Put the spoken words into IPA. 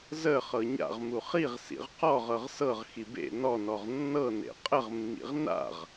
z ə χ ɤ ɲ a̰ ʁ m u χ i ʁ s ḭ ʁ q ɔ ʁ ɤ ʁ s ɤ ʁ x i b ḛ n ɔ n ɔ ʁ nː ɤ n ḛ qʼ ə ʁ mː ḭ ʁ n a̰ ʁ

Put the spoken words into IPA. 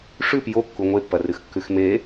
ʂ ʉ p j o kː u ŋʷ e pː ɐ r ɨ x kː ʉ x m e

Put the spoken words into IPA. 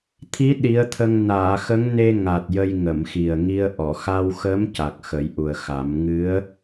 t̪ʰ i˧˥ ɗ i˧˥ ə̯ t̪ʰ ə˧ ŋ n aː˨˩˨ x ə˧˥ ŋ n e˧ ŋ a˨˩ t̚ j ə˧ j ŋ ə˨˩˨ m x i˨˩ ə̯ ŋ i˧ ə̯ ʔ ɔ˨˩˨ x a˧ w x ə˧˥ m c a˨˩ k̚ x ə˨˩˦ j ʔ u˨˩ ə̯ x a˨˩˦ m ŋ ɨ˧˥ ə̯

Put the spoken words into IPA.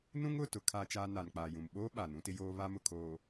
n ũ˦ ŋ ʊ˦˨ t ʊ˨ kʰ aː˦ t͡ʃ aː˦ n a˨ n k͡p aː˨ j ũ˨ m ɓ oː˦ ɓ a˨ n ũ˦ t ɪ˦ j oː˦ β a˦ m ʊ˨ kʰ oː˨

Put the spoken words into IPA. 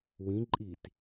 w ĩ ǃʼ i t

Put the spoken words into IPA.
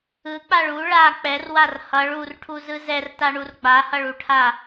ɯ k͡p a ɭ u ɭ a k͡p ɛ r w a r h ʌ ɭ u r ʈʰ u z ɯ z ɛ r t a ɳ u r ɡ͡b a h ʌ ɭ u ʈʰ a

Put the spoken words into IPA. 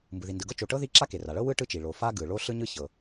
m b ɯ˩ ð i˩ n d ɯ˩ ɡ ɤ˥ t͡ʃ o˩ ʈ ɤ˥ ð i˥ ǁ a˥ k e˩ r a˩ ɭ ɤ˥ w ɯ˥ ʈ ɯ˥ t͡ʃ i˩ ɭ o˩ f a˥ ɡ ɯ˩ ɭ o˥ ɬ ɯ˥ ɲ ɯ˥ ç ɤ˩

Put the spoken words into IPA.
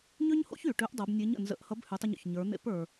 ɲ ø˥ ɲ h o̰˥ ç y˩ ʈ ø˧˥ ʔ dˤ o˩˧ b nʲ e˧˥ ɲ ə̰˩ n z ə̰˧˥ ʔ h ʌ˧˥ b h y˩˧ tˤ ə˧ ɲ o̰˩ ç ɲ ə˞˩˧ n̪ ḛ˧˥ p ə˞˩

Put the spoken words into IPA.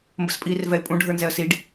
m b ə̰ s pʼ iː r v ɛ ɪ̯ pʼ ũ ɖʱ ə˞ n z ɛ ə̯ s i ɖ

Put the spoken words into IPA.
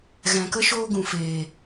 ɣ ɛ̃˨ k ə˦ ʃ oː˧ ɡ ũ˨ f eː˨

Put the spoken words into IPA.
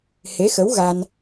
h e˧˥ x ə˧˥ w ɣ a˧ n

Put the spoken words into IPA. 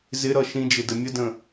z ɪ ɾ ʌ ʃ ĩ d͡ʒ ɪ d ə mʲ ə d ə̃

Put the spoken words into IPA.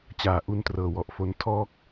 t͡ɕ aː˩˦ ʔ u˧ n t r ɤː˨˩ w ɔ˨˩ ʔ f o˦˥ n tʰ ɔː˥˩ k̚

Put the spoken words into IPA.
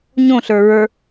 ɲ õ ɬ ə˞ ɹ ə˞

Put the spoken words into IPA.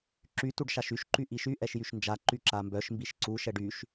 ǁ y t u ɖ ʃ a ʃ y ʃ ǃ y ʔ i ʃ y ʔ ɛ ʃ j y ʃ n d͡ʒ a ǃ y ǁ a m b œ ʃ m b i ʃ ǀ u ʃ ɛ ɖ y ʃ

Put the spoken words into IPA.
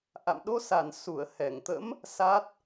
ʔ a̰˧˨ m ɗ o˧ s a˧˩ n s u˧˩ ə̯ h ɛ˧˩ ŋ t̪ ə̰˧˥ m | s a˦˥ t̚

